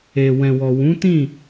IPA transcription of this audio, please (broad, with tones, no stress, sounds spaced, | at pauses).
e˨ w ɛ̃˨ w ɔ˨ w ũ˨˦ t ĩ˦˨